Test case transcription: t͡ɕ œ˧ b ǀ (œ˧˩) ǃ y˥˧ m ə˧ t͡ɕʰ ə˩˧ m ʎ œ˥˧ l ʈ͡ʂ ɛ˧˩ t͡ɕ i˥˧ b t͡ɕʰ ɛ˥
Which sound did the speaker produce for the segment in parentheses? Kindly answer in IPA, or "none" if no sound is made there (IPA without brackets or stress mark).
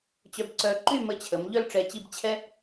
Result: œ˧˩